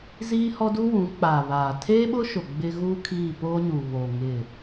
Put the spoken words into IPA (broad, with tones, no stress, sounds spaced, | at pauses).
z iː˦ h ɔ˦ d u˦ w ũ˨˦ k͡p aː˨ β aː˨ tʰ eː˦ ɓ ʊ˦ ʃ ʊ˨ ɡ͡b ɪ˦ ɣ uː˦ kʰ iː˦˨ p oː˦ ɲ uː˨ β o˨ ŋ ɪ˦˨